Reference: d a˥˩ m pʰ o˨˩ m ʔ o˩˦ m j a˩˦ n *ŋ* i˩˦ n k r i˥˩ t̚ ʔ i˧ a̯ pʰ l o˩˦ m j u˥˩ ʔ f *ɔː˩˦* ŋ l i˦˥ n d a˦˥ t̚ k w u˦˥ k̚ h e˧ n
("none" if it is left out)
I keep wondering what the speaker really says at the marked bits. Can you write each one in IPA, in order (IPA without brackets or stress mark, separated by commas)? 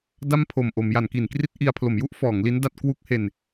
k, ɔː˩˦